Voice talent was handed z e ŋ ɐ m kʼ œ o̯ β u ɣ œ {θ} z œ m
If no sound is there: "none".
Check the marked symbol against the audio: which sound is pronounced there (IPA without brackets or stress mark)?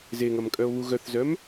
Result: θ